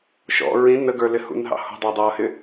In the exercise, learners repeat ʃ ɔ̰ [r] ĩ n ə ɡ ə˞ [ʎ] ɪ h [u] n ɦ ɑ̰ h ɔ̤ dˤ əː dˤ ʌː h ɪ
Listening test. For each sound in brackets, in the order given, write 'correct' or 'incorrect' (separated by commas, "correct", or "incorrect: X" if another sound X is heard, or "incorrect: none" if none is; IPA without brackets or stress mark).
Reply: incorrect: ɹ, incorrect: l, incorrect: ṵ